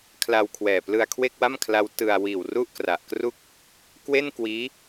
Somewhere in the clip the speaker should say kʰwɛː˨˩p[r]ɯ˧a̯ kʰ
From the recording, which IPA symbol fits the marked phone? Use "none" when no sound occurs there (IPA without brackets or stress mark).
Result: l